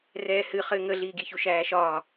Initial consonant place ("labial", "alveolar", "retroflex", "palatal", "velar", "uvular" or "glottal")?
alveolar